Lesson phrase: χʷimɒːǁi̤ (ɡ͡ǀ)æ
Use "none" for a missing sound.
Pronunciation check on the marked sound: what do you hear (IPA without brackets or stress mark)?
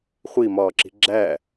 ɡ͡ǁ